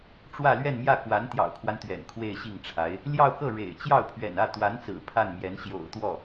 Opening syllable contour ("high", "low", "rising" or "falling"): falling